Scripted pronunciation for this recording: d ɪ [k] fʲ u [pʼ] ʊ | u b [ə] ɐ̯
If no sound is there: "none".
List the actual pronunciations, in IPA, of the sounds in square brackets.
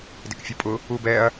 k, pʼ, ɛ

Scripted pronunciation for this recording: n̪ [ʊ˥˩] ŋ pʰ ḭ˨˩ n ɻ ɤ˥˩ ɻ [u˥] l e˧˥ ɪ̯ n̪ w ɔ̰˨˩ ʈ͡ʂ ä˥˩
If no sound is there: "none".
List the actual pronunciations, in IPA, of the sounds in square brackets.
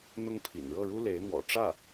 ʊ˥, u˥

